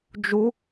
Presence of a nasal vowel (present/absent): absent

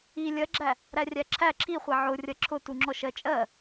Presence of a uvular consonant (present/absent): present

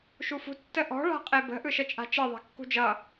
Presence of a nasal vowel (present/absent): absent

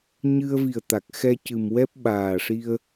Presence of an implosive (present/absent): present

